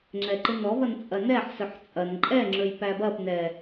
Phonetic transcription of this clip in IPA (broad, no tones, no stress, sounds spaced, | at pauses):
ŋ͡ǁ ɛ ǃ ɨ n ɔ v ɐ n t͡sʼ ɐ n ɛ ħ s ɵ ħ t͡sʼ ɐ n ǃʼ ɛ ŋ͡ǁ ɵ j p æ b ɐ p n ɛ